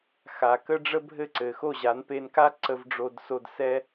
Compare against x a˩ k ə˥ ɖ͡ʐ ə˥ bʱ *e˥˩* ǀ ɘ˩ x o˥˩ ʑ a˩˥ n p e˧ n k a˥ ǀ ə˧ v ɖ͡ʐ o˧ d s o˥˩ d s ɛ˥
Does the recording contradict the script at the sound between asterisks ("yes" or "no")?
yes